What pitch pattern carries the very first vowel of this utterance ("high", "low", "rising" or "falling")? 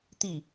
falling